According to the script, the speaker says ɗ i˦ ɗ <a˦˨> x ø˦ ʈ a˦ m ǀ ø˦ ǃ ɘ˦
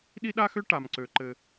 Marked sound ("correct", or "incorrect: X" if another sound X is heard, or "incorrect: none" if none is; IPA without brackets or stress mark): incorrect: a˦